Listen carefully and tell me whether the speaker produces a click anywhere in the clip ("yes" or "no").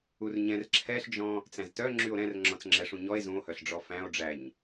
yes